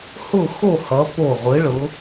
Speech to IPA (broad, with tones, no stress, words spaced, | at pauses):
hʊ˥˨xo˥˨hʌ˨˦ po˧˩ʁʷɯ˨˦ɭʊ˨˦